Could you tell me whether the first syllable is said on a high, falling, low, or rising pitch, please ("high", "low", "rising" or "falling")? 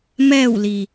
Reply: falling